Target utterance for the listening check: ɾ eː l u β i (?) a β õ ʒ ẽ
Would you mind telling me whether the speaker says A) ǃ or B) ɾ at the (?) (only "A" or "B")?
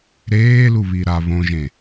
B